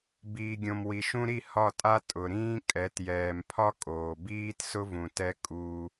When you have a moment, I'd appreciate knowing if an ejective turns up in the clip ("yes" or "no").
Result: yes